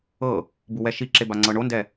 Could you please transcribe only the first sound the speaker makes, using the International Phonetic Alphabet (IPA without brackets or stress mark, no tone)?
ɤ